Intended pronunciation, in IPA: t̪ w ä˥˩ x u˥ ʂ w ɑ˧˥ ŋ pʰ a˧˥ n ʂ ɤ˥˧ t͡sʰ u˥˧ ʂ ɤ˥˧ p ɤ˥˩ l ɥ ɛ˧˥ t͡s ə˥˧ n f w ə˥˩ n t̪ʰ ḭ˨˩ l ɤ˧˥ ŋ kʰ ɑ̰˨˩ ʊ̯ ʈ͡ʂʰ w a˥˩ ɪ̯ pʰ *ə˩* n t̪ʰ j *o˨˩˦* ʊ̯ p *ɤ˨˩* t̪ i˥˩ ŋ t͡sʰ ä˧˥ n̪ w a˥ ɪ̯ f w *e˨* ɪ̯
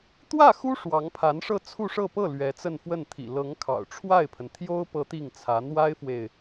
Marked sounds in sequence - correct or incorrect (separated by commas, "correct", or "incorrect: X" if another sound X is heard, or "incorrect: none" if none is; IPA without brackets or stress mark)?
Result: correct, incorrect: o˥, incorrect: ɤ˧˥, correct